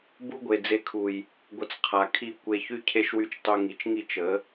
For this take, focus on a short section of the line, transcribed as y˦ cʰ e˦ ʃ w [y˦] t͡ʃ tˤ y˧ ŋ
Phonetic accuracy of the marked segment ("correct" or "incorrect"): correct